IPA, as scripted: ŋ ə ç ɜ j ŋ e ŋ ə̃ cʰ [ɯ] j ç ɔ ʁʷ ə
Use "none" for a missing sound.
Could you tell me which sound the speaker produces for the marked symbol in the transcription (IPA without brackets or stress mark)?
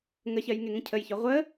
ə